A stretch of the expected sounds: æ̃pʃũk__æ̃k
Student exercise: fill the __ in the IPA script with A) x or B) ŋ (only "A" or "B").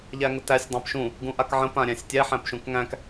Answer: B